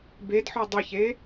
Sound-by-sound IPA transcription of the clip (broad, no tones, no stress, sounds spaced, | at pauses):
b e d ħ ɒ dˤ ə ç e